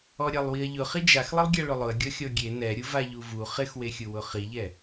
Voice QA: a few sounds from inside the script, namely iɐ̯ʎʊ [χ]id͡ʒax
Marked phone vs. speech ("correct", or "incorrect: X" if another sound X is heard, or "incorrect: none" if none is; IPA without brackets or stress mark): correct